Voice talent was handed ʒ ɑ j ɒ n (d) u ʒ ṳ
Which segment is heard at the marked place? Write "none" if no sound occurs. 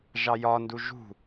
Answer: d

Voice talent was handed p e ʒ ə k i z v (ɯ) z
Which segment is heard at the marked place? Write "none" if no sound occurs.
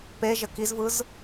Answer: ɯ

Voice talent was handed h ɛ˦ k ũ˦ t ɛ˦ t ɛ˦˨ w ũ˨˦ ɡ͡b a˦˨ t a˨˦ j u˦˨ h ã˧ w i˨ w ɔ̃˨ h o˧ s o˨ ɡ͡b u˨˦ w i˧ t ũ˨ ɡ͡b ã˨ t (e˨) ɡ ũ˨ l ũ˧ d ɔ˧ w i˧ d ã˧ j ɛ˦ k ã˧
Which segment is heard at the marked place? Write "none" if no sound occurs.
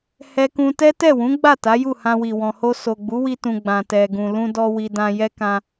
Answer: ɛ˨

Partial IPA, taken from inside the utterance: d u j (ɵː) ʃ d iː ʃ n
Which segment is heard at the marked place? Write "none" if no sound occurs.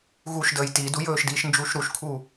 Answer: ɵː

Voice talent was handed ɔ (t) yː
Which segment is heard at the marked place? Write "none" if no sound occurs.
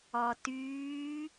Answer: t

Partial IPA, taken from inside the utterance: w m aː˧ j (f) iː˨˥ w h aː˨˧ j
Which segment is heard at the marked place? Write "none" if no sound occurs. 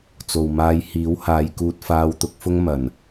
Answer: h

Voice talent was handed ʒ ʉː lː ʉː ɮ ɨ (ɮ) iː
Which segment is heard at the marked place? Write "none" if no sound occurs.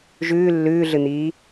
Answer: n̪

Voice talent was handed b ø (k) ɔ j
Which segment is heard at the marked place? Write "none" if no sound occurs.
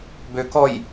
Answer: k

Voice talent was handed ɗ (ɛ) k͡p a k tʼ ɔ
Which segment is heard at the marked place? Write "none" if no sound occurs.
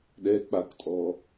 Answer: ɛ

